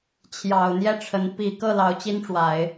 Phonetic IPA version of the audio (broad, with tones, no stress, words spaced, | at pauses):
t͡ɕʰjɑ˨˩ʊ̯n̪jɛ˥˩ ʈ͡ʂʰə˧˥n pi˨˩kɤ˥˩ lɑ˧˥ʊ̯t͡ɕi˥nʈ͡ʂwa˨˩˦ɪ̯